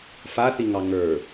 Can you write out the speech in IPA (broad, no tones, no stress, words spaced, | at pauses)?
faθiŋɑ ŋə˞